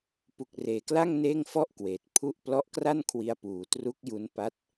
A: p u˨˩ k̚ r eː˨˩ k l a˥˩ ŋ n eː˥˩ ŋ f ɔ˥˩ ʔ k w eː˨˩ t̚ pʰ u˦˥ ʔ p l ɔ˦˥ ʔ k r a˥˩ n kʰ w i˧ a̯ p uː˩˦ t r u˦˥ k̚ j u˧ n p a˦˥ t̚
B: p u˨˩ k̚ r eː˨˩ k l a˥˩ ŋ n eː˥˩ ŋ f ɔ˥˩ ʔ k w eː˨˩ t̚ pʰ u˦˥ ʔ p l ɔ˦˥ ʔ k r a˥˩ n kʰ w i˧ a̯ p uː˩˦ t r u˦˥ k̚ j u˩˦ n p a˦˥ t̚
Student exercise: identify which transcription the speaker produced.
A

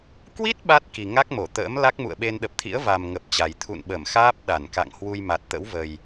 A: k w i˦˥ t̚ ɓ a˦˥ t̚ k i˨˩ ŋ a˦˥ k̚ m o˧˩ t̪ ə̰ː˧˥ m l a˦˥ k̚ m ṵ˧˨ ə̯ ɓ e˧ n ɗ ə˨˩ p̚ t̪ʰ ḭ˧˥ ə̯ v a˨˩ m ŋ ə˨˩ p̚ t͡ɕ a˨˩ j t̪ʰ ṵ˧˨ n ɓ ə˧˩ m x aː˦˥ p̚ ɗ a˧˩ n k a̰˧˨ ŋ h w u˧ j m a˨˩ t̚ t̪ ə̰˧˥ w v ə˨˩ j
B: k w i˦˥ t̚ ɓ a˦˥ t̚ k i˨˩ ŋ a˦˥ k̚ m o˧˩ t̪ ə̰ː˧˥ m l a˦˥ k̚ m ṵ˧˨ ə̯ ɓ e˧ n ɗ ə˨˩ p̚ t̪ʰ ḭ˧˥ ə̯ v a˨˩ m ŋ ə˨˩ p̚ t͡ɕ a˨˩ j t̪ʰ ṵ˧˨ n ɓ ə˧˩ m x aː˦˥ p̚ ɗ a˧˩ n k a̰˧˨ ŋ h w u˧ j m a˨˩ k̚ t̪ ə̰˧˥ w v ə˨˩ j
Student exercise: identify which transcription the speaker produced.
A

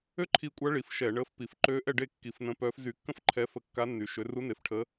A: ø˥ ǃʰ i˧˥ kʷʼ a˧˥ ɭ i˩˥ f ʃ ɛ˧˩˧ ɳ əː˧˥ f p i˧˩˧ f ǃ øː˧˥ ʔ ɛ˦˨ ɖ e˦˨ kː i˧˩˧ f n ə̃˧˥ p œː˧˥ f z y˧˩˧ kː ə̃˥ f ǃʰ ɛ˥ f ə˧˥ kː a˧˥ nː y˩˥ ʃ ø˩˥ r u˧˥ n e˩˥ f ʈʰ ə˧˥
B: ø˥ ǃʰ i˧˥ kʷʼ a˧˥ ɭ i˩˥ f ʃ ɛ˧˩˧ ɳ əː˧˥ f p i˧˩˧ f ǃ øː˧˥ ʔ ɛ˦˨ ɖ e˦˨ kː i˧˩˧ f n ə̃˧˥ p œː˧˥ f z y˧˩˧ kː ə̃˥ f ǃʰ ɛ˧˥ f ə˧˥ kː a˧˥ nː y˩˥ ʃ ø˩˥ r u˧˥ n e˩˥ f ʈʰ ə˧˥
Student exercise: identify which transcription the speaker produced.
B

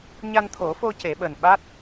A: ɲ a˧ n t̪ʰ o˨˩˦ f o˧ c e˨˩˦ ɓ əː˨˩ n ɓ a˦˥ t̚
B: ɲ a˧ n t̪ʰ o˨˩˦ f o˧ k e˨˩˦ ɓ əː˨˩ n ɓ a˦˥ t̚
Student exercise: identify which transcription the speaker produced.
A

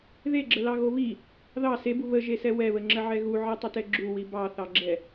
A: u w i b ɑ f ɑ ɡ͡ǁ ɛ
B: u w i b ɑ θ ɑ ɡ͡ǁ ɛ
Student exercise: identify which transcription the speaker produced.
B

